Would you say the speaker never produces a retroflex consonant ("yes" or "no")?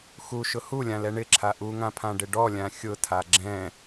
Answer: no